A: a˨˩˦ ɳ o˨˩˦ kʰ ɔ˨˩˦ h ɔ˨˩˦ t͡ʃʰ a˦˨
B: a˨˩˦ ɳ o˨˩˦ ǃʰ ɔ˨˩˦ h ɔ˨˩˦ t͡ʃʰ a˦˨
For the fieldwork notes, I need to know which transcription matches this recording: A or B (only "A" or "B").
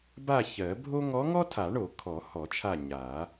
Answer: A